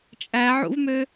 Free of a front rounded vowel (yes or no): no